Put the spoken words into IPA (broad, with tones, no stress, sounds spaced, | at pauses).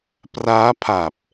p r aː˦˥ pʰ a˨˩ p̚